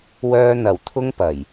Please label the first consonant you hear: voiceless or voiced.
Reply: voiced